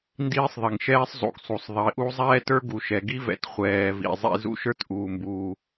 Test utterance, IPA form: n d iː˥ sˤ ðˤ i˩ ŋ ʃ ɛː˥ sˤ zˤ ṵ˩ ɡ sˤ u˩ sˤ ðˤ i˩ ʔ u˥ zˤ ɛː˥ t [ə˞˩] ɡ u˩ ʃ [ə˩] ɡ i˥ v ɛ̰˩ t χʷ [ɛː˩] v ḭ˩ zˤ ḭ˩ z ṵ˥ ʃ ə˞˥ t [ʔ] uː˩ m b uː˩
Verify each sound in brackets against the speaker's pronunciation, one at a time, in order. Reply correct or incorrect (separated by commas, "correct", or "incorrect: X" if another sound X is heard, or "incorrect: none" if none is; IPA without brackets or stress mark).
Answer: incorrect: ə˞˥, incorrect: ɛ˩, correct, correct